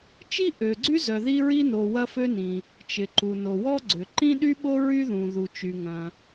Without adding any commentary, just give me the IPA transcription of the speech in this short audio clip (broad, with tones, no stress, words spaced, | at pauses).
t͡ʃi˥ ʔø˩ɡ͡ǀy˥zœ˩ ði˥ɹi˥no˩ wɐ˥fø˥nĩ˩ | t͡ʃɪ˩ǃu˩no˩ wɔ˥ɡ͡ǀʏ˩ ǃĩ˥ɗy˥ɓo˥ ɹy˥ðũ˩ ðu˩t͡ʃy˩ŋɐ̃˩